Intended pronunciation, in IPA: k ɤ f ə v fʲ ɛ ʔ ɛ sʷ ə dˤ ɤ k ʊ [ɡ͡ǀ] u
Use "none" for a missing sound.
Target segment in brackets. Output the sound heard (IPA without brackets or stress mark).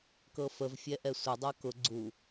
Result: ɡ͡ǀ